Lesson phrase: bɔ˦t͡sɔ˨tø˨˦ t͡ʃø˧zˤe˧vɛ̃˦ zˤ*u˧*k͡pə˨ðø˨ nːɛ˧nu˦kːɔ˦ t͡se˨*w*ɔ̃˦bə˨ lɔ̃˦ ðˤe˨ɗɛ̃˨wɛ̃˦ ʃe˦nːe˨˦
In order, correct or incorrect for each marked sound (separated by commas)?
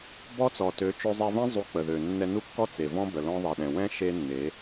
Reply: correct, incorrect